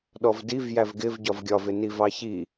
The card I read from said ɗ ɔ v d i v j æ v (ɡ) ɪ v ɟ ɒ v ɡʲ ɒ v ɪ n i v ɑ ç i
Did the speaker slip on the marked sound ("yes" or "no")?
no